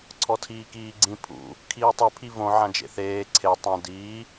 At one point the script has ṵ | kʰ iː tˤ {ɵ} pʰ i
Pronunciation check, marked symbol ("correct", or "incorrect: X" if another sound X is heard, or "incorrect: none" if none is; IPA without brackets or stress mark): correct